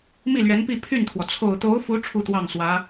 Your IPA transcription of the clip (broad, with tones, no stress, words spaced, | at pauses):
mi˥˩lɥɛ˧˥npi˥˧ pʰy˥˩nt̪ʰwɔ˩ t͡sʰo˨˩ʊ̯t̪o˧˥ʊ̯fu˧˥ ʈ͡ʂʰu˥t̪wɑ˥˩ŋswä˧˥